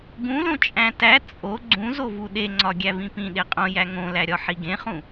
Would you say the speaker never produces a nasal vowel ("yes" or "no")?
no